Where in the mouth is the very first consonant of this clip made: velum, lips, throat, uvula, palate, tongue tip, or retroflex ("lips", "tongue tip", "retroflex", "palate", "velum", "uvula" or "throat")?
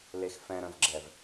tongue tip